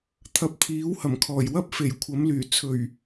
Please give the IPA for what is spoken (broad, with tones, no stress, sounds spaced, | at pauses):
t̪ʰ ɐ˨ p̚ t̪ʰ iː˨˥ w h ɐ˨˩ m kʰ ɔː˨˩ j w ɐ˥ p̚ f e˨˩ j kʷʰ ɐ˨˥ m l yː˨˩ t͡sʰ ɵ˨˩ ɥ